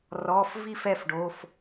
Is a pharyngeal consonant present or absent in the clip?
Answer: absent